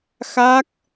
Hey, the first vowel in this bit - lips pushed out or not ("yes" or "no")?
no